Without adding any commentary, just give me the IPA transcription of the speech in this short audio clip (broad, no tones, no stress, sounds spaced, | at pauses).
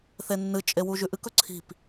θ e nː ɨ t͡ʃʼ e w u ʒ ʉ ʔ ɨ k ɵ ǀʰ i̤ p